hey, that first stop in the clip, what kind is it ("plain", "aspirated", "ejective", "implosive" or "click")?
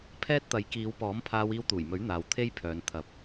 aspirated